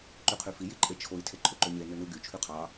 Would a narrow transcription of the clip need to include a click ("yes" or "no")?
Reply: yes